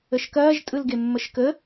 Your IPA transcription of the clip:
ə ʃ k ɐː ʒ tʼ ɯ l ɡ e mː ə ʃ k ə

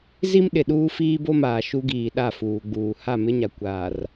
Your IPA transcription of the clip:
z i˦ m ɗ ɪ˨ ɗ uː˦ f iː˦ b o˦ m aː˨ ʃ u˦ ɡ iː˨ ɗ a˦˨ f uː˨ ɡ͡b uː˨ h a˦˨ m ɪ˦ ɲ a˨ kʷ aː˨ r

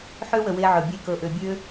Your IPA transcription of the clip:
ħ ø˦ w ə˨ w e˧ ʕ ɵ˨ bʲ e˦ k ɤ˧ ʔ ø˧ bʲ ø˦

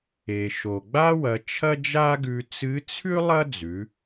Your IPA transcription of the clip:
e˩ ʃ o˩ ɡ͡b a˥ w ɐ˩˧ t͡ʃʰ ɐ˥ d͡ʒ a˥ ɡ ʉ˧ t͡s ɨ˧˥ t͡sʰ ʉ˥ lˠ ɐ˥ d͡z ʉ˩˧

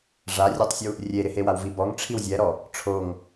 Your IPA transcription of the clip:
ʐ a rʲ ɔ tˤ sʲ u | rʲ e ɾ ɪ h e w a w v i b ɔ ŋ ʈ͡ʂʰ i w zʲ ɛ ɾ ɔ | ʈ͡ʂʰ o ŋ

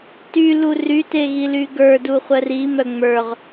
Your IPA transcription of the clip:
t y l u r y t e ɣ i l y ɡ ə˞ d u χʷ ɜ r i m œ ŋ͡m ə˞ ʁ

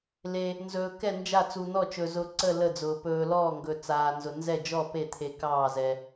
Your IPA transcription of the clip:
l e˩ | n z ɵː˩ k ɛ˧˩ n d͡ʒ a˧˩ t͡s u˩ n̪ ɔ˧˩ t͡ʃ ɵ˩ z ʊ˩ ǀ ə˧˩ l ə˧˩ d͡z ʊː˩ p ɵː˩ l ɔː˧˩ ŋ ɡ ɵ˩ t͡s aː˩ n z ʊ˩ n z ɛ˧˩ d͡ʒ ɔ˧˩ p e˧˩ t̪ʰ e˩ k ɑː˧˩ z ɛ˩

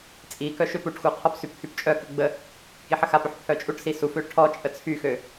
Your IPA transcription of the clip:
t͡sʼ i k œ ʃ ø p u ʈ x u qʰ ɔ p s y p kʰ y p t͡ʃʼ œ k ə ɡ͡b ə | k i ħ ə x a p ø ħ pʰ œ t͡ʃʼ u ʈ s i s u f ø ʈʰ ɔ t͡ʃʼ ə t͡sʰ y x ø

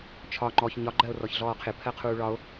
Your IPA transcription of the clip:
t͡ʃʰ ɒ ŋ͡ǃ ɔ ç ɲ ɒ ɡ͡ǃ ɜ o̯ r ɔ ç ɮ ɔː qʰ ɪ pʰ ɜ qʰ uː ɭ ɒ o̯

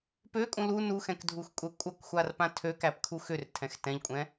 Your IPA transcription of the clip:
p ø kʼ ũ l u n u x ɛ̃ k dʱ u x kʷʼ ɛ kʷʼ ʌ k xʷ a r p ã tʰ ø k æ p kʰ u x ʏ r tʰ ɛ̃ x t ɛ̃ ʎ kʷʼ ɛ̃

